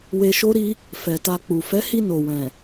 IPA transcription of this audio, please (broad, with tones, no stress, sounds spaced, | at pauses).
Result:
w e˧ ʃ o˦ ɾ i˦ | f ɛ˨ t a˧ k͡p u˨ f ɛ˨˦ h i˧ n o˨ w ɛ̃˨